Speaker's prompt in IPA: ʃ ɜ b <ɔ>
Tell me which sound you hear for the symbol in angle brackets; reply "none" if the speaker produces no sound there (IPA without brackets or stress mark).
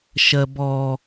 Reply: ɔ